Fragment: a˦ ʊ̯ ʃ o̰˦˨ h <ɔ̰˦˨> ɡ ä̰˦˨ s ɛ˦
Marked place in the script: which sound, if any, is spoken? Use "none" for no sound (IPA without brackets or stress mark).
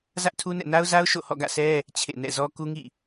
ɔ̰˦˨